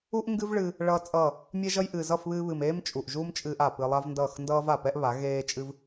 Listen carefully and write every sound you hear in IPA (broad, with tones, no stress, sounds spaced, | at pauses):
u˦ ʔ ŋ ɡ ɨ˦ v ɭ ɨ˧ | ɭ ʌː˦ t͡sʼ ʌː˦˨ | mʲ ɛ˦ ʒ ʌ˦ j ʔ ɨː˨ z ʌ˦˨ f β ɨː˧ β ɨ˨ m eː˦ m t͡ʃʼ u˨ ʔ ʒ uː˦ m t͡ʃʼ ɨː˧ ʔ a˨ p ɨ˧ lˠ a˦ v n d ʌː˦˨ x n d ʌː˦ v a˨ p ɛ˦ ʔ β a˨˦ ɣ eː˦ t͡ʃʼ ɨ˦ v